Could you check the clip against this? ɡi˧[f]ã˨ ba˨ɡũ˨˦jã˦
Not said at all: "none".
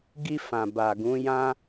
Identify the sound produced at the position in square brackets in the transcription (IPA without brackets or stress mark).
f